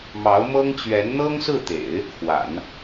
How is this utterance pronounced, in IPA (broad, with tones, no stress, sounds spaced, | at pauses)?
m ɑ˧˥ ʊ̯ m ɤ˥ ŋ t͡ɕ ɥ ɛ˧˥ n n̪ ɤ˥ ŋ s ɹ̩˥˩ t̪ ḛ˨˩˦ ɪ̯ | x w a̰˨˩˦ n